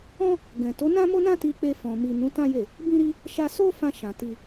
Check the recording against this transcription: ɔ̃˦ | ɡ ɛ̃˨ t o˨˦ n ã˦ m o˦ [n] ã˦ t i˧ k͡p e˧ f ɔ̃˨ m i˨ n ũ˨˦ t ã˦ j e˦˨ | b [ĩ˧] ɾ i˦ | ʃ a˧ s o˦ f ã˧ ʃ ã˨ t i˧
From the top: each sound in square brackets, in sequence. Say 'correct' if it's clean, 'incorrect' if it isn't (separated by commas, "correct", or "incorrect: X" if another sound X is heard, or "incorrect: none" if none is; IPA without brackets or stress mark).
correct, incorrect: ĩ˦